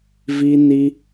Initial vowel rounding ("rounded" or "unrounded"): unrounded